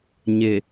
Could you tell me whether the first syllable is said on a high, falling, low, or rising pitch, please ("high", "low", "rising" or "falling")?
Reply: low